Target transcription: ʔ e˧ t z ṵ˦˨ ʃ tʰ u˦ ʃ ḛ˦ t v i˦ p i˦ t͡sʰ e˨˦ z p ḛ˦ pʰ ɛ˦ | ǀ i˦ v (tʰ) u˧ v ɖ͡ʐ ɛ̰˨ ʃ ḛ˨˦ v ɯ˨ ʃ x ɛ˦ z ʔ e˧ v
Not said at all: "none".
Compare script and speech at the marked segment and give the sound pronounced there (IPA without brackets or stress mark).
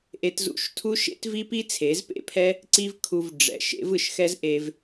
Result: kʰ